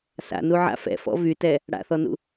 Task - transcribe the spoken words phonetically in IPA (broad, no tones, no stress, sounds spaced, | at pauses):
s a̰ n u ʕ a̰ f ɛ̰ f ɔ̰ v y t ɛ | ɽ a̰ θ ɔ n ṵ